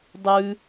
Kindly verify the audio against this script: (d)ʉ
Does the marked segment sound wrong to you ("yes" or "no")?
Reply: yes